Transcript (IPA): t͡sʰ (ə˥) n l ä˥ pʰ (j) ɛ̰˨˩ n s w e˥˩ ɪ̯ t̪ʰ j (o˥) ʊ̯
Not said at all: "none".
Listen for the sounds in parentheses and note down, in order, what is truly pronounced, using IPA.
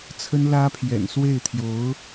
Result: ə˥, j, o˧˥

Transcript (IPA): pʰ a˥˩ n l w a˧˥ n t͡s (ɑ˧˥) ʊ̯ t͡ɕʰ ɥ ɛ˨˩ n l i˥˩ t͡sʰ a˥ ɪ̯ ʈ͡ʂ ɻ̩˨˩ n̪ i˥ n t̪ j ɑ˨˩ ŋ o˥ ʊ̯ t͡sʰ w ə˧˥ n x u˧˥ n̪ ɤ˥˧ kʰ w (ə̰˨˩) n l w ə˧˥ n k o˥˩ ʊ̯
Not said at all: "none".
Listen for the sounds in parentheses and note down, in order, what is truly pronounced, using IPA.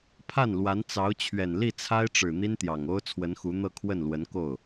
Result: ɑ˧˥, ə˥˩

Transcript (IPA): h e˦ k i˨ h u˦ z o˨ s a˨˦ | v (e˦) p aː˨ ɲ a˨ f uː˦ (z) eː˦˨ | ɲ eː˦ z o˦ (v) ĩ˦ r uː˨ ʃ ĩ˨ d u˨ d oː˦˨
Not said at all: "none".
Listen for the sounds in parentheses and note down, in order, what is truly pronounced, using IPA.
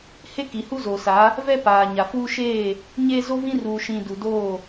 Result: ɛ˦, ʃ, v

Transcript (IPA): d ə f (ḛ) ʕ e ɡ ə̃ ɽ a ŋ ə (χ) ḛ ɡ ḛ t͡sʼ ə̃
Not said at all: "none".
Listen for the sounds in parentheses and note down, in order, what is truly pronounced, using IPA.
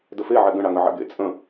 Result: e, ʕ

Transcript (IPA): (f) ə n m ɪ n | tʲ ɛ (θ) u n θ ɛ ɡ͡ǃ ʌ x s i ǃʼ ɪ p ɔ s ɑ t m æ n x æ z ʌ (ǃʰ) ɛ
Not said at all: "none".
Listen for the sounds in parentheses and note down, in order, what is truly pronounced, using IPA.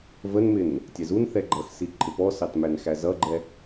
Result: v, z, ɡ͡ǃ

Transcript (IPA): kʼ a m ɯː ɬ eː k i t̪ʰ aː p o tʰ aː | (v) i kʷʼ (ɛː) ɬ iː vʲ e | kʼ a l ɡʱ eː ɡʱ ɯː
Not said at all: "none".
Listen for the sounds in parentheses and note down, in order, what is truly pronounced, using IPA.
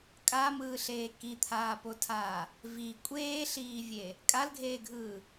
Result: v, eː

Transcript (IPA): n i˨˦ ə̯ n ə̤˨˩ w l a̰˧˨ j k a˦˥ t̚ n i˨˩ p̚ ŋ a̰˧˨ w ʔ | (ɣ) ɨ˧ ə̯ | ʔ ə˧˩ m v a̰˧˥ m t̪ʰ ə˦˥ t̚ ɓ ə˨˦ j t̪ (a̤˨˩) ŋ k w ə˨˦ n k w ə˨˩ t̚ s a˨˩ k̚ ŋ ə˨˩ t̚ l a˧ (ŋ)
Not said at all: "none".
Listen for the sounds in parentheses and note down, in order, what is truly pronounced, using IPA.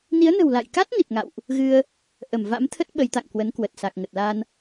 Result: ɣ, a̰˧˨, n

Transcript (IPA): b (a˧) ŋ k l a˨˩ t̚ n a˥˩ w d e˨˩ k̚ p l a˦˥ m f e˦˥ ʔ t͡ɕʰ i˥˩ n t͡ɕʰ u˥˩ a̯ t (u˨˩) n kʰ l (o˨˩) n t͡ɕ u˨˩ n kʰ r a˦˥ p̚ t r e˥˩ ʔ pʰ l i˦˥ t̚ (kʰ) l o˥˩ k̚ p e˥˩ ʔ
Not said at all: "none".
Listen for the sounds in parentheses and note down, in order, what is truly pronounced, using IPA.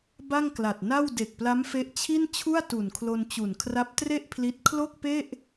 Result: a˥˩, u˨˩, o˧, kʰ

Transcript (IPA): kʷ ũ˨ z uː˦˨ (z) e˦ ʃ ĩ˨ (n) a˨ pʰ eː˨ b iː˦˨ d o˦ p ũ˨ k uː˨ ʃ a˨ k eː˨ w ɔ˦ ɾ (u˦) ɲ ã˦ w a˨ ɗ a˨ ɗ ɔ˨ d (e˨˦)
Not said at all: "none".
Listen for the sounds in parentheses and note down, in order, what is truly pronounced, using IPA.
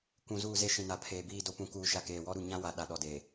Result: z, n, u˨, e˨

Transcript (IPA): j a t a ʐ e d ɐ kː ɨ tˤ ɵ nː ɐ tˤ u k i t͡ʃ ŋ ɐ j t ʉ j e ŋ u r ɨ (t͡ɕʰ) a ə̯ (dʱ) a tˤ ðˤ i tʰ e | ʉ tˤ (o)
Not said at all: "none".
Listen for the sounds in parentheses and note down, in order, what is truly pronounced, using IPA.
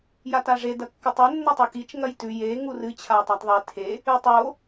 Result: t͡ɕʰ, tˤ, o

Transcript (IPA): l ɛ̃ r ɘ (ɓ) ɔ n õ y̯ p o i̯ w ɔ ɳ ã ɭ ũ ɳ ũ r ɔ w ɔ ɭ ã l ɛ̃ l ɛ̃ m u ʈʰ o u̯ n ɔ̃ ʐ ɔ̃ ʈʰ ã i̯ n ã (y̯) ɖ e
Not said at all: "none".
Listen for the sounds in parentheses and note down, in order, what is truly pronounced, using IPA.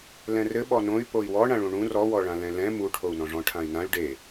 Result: ɓ, y̯

